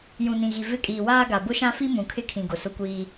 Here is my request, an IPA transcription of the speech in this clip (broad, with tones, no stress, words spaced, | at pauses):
jũ˨nĩ˨ɣi˨ vɪ˦˨kʼiː˨waː˦ ɡa˨bʊ˦ʃã˦fi˦ mũ˨kʰɪ˦kʰĩ˨ ɡʊ˨sʊ˦kʷiː˦